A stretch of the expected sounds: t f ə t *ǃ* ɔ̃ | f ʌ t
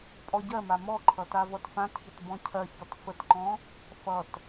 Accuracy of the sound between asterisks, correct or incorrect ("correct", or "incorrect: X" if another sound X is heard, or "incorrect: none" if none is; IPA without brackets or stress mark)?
correct